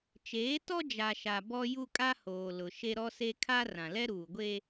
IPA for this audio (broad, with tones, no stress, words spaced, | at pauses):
t͡ʃeː˨˦tɔ˦ d͡ʒa˨ʃa˨ bɔ˦ ju˦kʼa˦hoː˨ lʊ˨ ʃe˦ɾɔ˦se˦ kʰa˦ rã˨lɛ˦ɾuː˨ ɡʷe˦